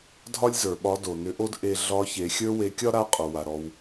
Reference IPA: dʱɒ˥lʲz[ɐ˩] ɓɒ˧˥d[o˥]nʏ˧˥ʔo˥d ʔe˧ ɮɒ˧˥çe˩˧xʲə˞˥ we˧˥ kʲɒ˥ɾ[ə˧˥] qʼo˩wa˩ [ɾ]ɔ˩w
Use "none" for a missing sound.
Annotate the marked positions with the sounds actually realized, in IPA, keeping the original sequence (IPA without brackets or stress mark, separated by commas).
ə˞˩, o˩, a˧˥, ɾ